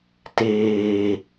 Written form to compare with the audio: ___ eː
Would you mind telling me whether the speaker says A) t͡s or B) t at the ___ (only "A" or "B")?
B